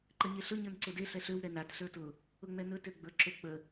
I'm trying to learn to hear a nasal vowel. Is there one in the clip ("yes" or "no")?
no